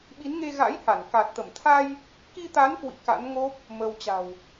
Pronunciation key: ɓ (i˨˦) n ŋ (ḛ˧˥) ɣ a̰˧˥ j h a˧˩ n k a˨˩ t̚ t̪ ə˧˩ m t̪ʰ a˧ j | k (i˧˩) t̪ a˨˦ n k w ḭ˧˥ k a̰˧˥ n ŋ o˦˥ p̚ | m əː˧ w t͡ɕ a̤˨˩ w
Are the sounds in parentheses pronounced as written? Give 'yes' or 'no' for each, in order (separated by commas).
yes, no, no